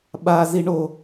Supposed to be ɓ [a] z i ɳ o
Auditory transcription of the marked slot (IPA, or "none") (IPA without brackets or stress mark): a